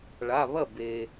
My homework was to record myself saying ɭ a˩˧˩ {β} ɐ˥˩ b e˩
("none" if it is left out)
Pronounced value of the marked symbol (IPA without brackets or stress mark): β